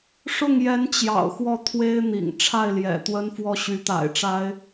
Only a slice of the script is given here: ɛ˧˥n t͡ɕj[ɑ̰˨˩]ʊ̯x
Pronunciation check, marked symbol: correct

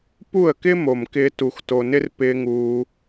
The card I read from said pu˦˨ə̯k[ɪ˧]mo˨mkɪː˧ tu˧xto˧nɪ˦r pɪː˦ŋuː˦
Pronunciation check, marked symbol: incorrect: ɪ˦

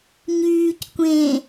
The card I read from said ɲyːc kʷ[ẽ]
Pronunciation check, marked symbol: correct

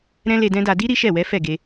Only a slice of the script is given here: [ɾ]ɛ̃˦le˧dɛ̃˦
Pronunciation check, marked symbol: correct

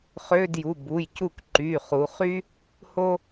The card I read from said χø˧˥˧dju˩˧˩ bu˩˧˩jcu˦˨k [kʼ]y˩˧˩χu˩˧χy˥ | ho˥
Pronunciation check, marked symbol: incorrect: ǃ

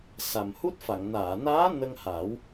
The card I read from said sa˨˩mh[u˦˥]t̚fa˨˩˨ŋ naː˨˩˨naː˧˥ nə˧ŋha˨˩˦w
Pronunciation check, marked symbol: correct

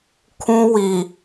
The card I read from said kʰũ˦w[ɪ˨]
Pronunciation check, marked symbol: incorrect: i˨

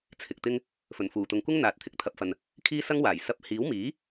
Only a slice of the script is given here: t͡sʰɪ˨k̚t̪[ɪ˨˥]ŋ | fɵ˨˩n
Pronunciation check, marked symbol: incorrect: ɪ˥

